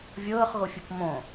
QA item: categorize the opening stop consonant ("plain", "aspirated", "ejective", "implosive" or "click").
plain